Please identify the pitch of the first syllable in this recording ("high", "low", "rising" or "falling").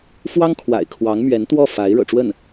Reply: high